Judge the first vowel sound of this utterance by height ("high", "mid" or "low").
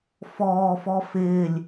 mid